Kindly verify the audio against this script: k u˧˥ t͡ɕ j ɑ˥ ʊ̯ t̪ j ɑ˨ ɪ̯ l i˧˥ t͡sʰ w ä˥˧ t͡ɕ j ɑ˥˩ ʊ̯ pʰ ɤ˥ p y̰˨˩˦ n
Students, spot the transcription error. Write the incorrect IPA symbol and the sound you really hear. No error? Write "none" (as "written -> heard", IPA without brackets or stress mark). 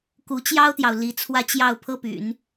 ɪ̯ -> ʊ̯